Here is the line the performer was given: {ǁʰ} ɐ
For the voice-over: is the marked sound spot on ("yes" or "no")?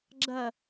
no